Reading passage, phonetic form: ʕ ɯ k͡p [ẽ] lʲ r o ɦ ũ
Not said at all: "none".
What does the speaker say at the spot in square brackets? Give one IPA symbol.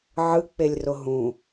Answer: e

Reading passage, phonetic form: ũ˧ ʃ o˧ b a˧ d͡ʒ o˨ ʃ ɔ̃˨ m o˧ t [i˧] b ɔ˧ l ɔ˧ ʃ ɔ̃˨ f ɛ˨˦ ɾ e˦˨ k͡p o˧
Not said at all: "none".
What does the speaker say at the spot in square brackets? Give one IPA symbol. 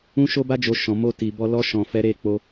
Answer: i˨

